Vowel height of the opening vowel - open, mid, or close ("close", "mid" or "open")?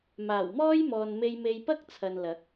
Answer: open